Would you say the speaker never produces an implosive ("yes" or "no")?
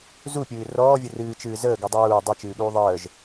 no